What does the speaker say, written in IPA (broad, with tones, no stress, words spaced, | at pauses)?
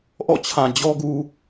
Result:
ʔɔ̰˦˨t͡ɕʰã˨ d͡ʑɔ˦ɡu˦